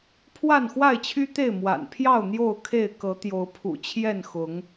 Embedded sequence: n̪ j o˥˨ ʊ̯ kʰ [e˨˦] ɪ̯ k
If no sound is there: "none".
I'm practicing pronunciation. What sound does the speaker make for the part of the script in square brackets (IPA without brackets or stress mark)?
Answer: e˥˨